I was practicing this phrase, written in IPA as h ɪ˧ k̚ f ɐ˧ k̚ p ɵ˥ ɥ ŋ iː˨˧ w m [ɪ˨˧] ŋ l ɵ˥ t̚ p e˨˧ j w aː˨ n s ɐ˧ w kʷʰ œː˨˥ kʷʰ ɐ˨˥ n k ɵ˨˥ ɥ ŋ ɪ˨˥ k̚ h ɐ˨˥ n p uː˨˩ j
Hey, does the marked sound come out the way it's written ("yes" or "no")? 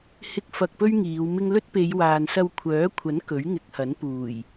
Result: no